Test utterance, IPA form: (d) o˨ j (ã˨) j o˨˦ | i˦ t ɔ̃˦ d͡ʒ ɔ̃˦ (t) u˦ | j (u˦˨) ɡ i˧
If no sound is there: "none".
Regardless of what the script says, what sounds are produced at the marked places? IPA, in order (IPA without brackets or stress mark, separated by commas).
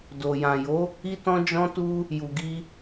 d, ã˨, t, u˨